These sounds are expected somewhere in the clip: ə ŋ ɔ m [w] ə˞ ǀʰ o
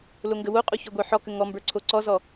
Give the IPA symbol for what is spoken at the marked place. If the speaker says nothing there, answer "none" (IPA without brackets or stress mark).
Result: b